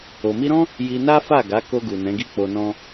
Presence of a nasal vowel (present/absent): present